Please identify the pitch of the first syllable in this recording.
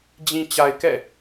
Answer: low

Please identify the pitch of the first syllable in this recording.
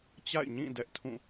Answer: falling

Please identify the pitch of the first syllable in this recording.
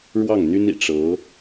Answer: falling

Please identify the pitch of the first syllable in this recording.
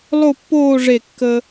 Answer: falling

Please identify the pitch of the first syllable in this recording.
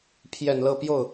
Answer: low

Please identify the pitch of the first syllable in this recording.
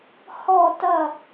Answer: falling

